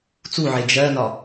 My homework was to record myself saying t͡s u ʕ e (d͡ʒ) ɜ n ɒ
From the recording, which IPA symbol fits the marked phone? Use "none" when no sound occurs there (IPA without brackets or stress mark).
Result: d͡ʒ